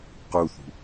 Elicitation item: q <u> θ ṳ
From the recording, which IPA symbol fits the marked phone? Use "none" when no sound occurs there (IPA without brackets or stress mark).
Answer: u